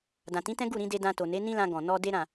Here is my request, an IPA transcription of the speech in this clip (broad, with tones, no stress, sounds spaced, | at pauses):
d ã˨ t ĩ˨˦ t ɛ̃˦ ɡ u˦˨ ɾ ĩ˧ d e˧ d ã˧ t o˨ n e˨˦ n ĩ˦ l ã˧ ɡ ɔ̃˨ n ɔ˧ d e˦ ɾ ã˦˨